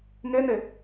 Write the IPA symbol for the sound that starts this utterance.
ŋ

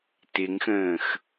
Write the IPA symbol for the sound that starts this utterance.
t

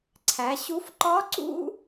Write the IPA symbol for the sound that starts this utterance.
ǀʰ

